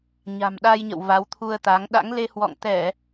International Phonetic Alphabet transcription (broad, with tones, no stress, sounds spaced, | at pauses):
ɲ a̤˨˩ m ɗ a˧ j ɲ ə̰˧˨ w v a˨˦ w t̪ʰ u˧ ə̯ t̪ a˨˦ ŋ ɗ a̰˧˥ ŋ l e˧ h w ɔ̰˧˨ ŋ t̪ ɛ˧˩˨